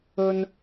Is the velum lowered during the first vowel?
no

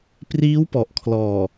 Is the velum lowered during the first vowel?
no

